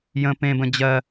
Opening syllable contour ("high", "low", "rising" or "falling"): high